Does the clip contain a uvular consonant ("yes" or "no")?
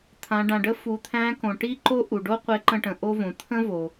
yes